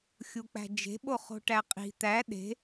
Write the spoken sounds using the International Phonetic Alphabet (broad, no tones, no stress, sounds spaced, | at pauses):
xʲ u k͡p æ̤ d͡ʒ e̤ ɓ o χ o̤ ʈ æ qʼ i̤ t̪ æ ɗ e̤